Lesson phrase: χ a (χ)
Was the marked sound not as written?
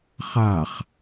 no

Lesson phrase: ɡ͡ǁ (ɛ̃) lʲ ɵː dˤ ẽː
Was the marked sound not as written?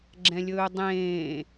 no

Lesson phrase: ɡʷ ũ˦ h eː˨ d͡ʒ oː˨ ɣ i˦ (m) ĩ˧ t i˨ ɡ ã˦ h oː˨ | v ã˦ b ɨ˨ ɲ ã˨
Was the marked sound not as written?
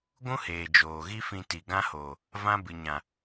yes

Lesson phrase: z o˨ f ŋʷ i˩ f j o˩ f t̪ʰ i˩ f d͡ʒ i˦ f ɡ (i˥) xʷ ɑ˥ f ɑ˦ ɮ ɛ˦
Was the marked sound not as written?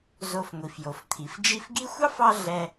no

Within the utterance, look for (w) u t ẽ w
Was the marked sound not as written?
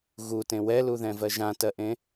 yes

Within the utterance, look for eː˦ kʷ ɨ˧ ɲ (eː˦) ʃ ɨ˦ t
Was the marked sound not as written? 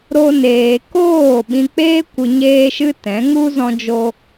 no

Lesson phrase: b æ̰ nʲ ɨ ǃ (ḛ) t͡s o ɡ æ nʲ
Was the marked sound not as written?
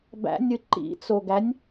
yes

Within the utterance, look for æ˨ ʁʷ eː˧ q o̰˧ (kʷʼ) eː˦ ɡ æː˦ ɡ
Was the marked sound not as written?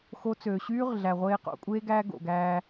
no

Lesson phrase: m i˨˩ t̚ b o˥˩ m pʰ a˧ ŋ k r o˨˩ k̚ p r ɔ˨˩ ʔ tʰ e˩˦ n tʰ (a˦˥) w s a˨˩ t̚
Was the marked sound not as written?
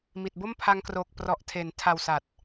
yes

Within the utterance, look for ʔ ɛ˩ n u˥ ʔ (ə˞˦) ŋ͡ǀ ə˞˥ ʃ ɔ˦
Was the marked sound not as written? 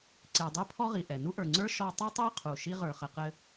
yes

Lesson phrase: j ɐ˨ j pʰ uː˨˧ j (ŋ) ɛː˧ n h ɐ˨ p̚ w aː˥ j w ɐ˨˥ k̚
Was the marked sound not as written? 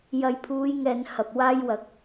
no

